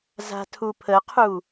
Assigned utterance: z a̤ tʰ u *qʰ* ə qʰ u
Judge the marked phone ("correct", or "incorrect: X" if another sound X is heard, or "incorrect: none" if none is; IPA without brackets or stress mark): incorrect: pʰ